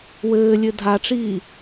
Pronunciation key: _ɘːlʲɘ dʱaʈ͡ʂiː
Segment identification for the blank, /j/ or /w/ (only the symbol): w